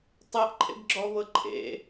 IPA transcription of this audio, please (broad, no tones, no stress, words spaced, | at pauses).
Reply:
tˤeʔǃʰḛɡɡ͡ǁɔβɤ ǃʰḛ